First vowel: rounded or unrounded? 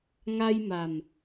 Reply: unrounded